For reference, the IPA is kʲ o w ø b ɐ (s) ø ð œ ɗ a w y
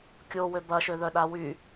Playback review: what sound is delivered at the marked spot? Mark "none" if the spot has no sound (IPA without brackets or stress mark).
ʃ